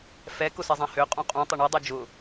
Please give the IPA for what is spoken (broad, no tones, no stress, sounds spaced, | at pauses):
f ɛ k ʊ s ɛ zˤ ã h ø qʼ ũ qʼ ũ tˤ ʏ ɳ i dˤ u d͡ʒ ʊ